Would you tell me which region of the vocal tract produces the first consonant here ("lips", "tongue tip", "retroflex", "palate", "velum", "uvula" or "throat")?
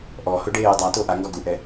throat